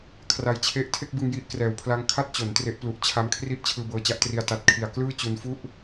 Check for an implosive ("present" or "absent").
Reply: absent